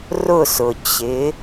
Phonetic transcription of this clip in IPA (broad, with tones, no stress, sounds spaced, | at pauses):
r ʊ˦˨ s ʊ˩ t͡ɕ ɪ˩˧